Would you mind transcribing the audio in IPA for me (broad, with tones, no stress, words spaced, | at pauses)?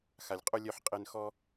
xa˨lʲqʼo˦ lʲœ˧ħqʼe˧nxɔ˦